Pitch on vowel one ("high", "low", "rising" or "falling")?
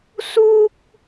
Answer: high